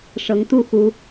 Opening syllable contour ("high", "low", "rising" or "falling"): rising